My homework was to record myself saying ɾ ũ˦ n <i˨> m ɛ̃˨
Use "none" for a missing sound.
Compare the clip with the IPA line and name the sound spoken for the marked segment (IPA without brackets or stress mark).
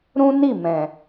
i˦˨